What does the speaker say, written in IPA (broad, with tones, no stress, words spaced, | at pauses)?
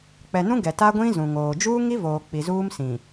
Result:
k͡pɛ˨nũ˦ ɡɛ˨ ta˦ɡʷĩ˦ zũ˨ŋoː˨ d͡ʒuː˦ŋi˦ voː˨k͡pi˨zuː˦m sĩ˨